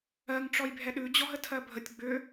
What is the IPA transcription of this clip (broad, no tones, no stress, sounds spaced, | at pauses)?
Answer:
ɜ ŋ ʈ͡ʂ ɔ j bʱ ɛ ɗ ʉ d͡ʑ ɔ ɦ ə tʰ ɜ bʱ ə tʲ ɡ͡b ʏ